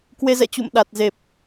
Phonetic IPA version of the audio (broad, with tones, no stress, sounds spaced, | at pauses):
k w e˧ z ɛ̰˧˨ t͡ɕ ṵ˧˨ m ɗ a˨˩ t̚ z e˨˩ p̚